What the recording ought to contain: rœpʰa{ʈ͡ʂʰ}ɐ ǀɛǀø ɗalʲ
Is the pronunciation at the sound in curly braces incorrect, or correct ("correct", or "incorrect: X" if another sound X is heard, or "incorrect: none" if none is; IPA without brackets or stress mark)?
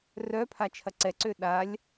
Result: incorrect: t͡ʃʰ